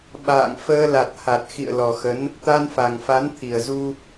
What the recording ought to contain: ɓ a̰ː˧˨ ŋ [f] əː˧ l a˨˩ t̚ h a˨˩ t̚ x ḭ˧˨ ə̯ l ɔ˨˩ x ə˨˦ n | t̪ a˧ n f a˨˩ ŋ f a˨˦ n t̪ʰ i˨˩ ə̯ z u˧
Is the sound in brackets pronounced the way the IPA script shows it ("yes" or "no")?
yes